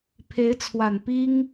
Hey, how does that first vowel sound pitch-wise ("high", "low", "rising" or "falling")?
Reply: rising